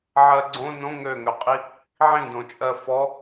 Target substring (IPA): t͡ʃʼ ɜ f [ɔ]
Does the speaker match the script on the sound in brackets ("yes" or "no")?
yes